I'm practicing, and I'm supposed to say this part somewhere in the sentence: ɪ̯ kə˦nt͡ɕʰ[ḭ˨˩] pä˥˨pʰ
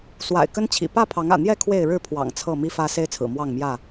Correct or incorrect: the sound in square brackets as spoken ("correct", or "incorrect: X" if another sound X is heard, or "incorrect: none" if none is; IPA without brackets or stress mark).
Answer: correct